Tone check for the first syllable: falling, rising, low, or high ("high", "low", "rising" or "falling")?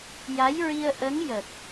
rising